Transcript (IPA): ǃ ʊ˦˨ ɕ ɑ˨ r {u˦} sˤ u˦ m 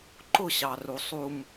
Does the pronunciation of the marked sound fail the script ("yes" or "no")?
yes